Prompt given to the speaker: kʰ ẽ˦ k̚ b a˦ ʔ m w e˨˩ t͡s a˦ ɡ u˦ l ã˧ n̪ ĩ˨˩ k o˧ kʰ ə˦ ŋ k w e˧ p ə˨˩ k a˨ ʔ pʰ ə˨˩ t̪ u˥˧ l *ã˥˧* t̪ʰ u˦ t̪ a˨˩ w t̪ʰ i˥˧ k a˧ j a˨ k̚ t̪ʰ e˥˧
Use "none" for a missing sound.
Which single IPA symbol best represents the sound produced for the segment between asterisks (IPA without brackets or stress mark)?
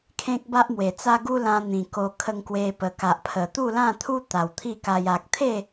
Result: ã˥˧